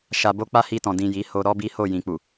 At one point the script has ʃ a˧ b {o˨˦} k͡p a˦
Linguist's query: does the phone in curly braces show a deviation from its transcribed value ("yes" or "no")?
yes